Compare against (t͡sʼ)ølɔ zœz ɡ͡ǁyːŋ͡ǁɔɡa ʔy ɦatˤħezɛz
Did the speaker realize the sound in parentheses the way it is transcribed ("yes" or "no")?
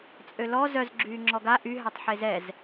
yes